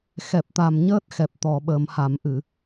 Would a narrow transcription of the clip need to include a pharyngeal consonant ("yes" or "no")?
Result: no